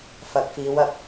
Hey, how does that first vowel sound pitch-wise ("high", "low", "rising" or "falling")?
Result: rising